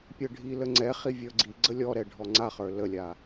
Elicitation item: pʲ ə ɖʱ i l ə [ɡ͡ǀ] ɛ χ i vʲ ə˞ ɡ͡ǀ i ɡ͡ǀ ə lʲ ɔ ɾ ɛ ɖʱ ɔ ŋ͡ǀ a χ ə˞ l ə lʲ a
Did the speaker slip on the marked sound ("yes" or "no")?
yes